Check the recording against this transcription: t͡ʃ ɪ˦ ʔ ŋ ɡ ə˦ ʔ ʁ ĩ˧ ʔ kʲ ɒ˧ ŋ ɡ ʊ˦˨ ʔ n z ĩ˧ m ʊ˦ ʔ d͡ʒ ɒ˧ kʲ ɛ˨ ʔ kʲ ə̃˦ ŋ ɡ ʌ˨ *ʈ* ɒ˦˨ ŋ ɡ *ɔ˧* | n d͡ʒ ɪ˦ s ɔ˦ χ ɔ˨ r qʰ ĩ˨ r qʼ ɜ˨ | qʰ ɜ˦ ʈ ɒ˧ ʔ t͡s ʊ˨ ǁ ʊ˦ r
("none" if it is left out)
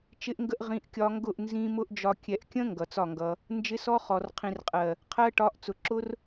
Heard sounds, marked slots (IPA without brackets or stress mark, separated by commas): t͡s, ʌ˧